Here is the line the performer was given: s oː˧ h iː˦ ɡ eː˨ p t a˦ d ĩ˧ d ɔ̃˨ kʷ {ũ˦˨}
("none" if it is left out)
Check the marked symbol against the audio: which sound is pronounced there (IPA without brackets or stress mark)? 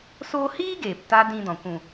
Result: ũ˨